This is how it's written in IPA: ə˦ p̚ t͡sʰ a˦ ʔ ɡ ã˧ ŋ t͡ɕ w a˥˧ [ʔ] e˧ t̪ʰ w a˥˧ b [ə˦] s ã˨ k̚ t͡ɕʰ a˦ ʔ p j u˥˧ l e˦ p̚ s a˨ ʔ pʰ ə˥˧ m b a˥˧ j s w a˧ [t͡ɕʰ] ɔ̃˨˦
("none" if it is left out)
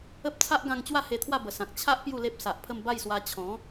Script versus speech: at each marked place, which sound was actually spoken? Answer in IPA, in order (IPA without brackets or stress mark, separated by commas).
h, ə˨˩, t͡ɕʰ